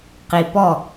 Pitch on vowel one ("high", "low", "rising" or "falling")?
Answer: low